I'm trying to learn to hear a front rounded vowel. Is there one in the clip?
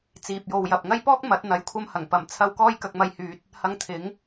yes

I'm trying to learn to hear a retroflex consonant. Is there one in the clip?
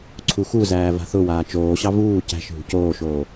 no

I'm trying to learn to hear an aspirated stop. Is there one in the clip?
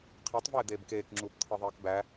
yes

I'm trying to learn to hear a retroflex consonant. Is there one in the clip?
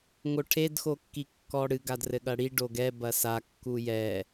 yes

